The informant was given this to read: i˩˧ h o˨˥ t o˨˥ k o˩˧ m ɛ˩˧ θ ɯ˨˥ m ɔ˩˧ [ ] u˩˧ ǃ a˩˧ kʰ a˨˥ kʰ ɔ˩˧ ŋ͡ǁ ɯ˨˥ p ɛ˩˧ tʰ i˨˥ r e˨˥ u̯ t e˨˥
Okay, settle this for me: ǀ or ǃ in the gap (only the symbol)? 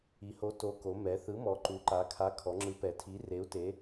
ǃ